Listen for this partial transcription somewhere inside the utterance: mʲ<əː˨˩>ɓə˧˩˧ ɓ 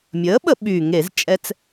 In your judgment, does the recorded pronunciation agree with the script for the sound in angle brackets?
no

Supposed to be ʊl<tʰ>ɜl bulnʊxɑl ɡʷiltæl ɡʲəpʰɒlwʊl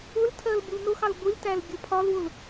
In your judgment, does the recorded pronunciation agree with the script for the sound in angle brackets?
yes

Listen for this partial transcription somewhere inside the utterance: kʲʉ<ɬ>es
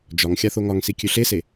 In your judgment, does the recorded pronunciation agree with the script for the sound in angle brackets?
yes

